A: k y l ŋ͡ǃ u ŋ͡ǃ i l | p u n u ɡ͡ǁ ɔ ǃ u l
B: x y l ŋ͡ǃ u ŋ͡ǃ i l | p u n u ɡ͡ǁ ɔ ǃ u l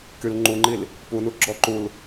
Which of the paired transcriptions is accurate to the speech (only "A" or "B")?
A